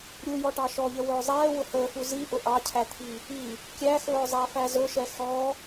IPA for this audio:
ɾʲujɔʈɑ ʃɔʎəwɵː zˤɛːwʊ həːfu ziʔʊ ʔɑcʰæt̪ʰi | i | kʲæxɵːzˤæfæ zɵʃɛ xɔ

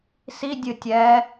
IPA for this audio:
sidʲɨ tʲɛ

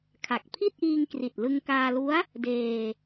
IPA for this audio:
kʰa˨˩k̚ pʰi˥˩t̚ʔiː˧ŋkri˨˩t̚ lɯ˧ŋkaː˧lu˦˥a̯ | deː˧

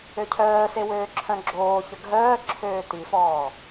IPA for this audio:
øcʰœːse wøːǁʰœ̃ɡ͡ǁoːçə ɡʱœː ǁʰøːtifɔː

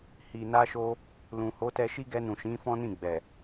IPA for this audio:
hi˨na˧ʃo˧ | lũ˨ho˨˦ tɛ˧ʃi˦ɡɛ˧nũ˨ ʃĩ˨˦fɔ̃˦nĩ˦˨ɡ͡bɛ˨

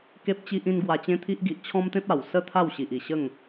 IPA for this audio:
ke˦p̚t͡ɕi˦ʔĩ˦n ɡwa˧t͡ɕẽ˦t̪ʰi˦ʔɡi˨ʔ t͡ɕʰɔ̃˦mt̪ẽ˦p̚ a˨˩wsə˥˧ t̪ʰa˥˧wɕi˨ʔi˨˩ɕə˥˧ŋ

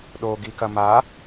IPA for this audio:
ɗoɡikɐ ma

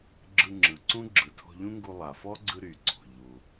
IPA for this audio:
ɡ͡ǁɯ˧ŋ͡ǁɯ˩ǀũ˥ ɡ͡ǁɯ˩tʰɔ̤˧ʎũ˥ŋɡu˧ lˠa˩fɔ˥ɡ͡ǀɯ˧ ɾy˩ɡ͡ǀɔ̤˩ ʎu˩

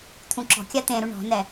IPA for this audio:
t̪ʰũǁɔ̤kʲa t̪ẽɾu ɳɔ̤nɛ

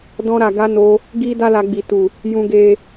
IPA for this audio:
dɔ̃˧ɾa˨ɡa˧ no˧ | ɡi˧ da˦la˧ɡ͡bi˨tu˨ | jũ˧ɡe˧

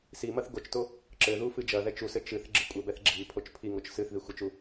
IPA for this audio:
si mɐθɡot͡ʃto | ǁɘ ðufɨd͡ʒɐðɛt͡ʃ usɘ t͡ʃɨθ ɡ͡ǁɨkʷʼɘbɛθ ɡ͡ǁi pʰot͡ʃpʰiŋot͡ʃ sɨθ ðixʷɨt͡ʃu

